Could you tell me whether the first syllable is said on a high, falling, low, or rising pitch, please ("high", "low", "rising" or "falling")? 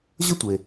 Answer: high